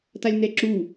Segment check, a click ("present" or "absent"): present